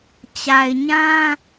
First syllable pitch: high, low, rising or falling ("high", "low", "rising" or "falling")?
low